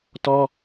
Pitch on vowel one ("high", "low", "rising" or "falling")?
high